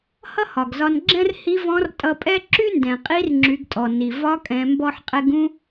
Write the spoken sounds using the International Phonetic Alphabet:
hʌ˥hɒ˩ɡzɒ˧nɡ͡ǁɛ̃˥r hi˧˥vɔ̃˧˥rtʼʌ˧pʼɛ˥ ǁy˥ndɛ̃˩qʼi˧˥rŋ͡ǁy˩˧ɡ tʼɔ˩ni˩ vɒ˧˥kʼɛ̃˩˧ mbɔ˧ħqʼɛ˧ɡ ũ˥

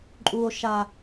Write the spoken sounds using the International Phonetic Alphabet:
ǃʼu˨o̯ʃa˨

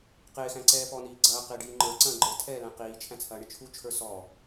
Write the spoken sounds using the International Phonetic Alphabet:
qɪːxæ̃ǀɛː pɔniː ɡ͡ǀɐːqɪːɖiː ŋ͡ǃə˞ǀɐ̃ː ɡ͡ǃə˞tʰɛːlæ̃ qiːt͡ʃʰæ̃t͡sʰɐːɳɪ t͡ʃʰut͡ʃʰə˞ sɔ

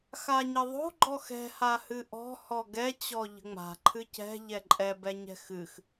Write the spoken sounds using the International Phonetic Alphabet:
xaɲəðˤo̤ ɡ͡ǃɔxɛ̤ hahɨʔɔ̤ hɔɡɛ t͡ɕɔʎə̤ŋ͡ma̤ ǃʰɨcɛ̤ ʎɛǃʼɛ bɛɲɛ̤xɨx

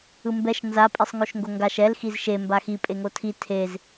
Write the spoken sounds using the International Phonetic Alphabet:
ɯmbɛʃ nza pʼisˤŋoʃŋɡoŋɡaʃ ɛl xizʃe mbaxi pʼeŋotʰi tʰez

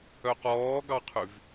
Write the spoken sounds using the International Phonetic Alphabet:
œqɔːɡɑqʰyv

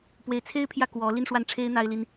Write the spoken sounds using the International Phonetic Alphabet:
pwe˧˥ɪ̯t͡sʰe˥ɪ̯pʰjä˥˩kwɔ˧˥ li˥˧n ʂwa˥˩nʈ͡ʂʰe˥ɪ̯ n̪a˥ɪ̯li˥n

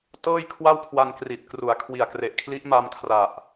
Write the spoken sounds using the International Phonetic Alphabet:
tɤː˥˩jkʰwa˥˩wkʰwa˧nkri˨˩t̚ kru˩˦a̯kʰwi˨˩a̯kre˨˩ʔkʰli˦˥ʔ ma˧mkʰra˨˩ʔ

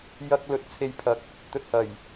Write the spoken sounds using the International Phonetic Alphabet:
jɐ˧k̚ lɵ˨˥t̚t͡sʰe˨jpʰɐ˨˥k̚ | t̪ɵ˨t̚hɐ˨˩j

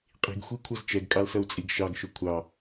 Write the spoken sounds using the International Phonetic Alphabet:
qʼi̤ɡxʷikʷʰʌz t͡ʃɛɡkʼɑlsʌu̯t͡sʼiɡ ʃɑɡʃʊ kʷʰɑ

